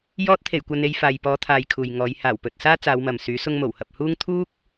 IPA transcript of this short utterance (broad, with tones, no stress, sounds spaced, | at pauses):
j ɔː˧ t̚ t̪ʰ e˨˩ j kʷ ɐ˨ n e˧ j f aː˨ j p ɔː˨˧ t̪ʰ aː˨ j kʰ uː˨ j ŋ ɔː˨˧ j h aː˨˩ w p ɵ˨ t̚ s aː˥ t͡s aː˨˧ w m ɐ˨ m s yː˨˥ s ʊ˧ ŋ m o˨˩ w h ɐ˨ p̚ h uː˥ ŋ t̪ʰ uː˥ k̚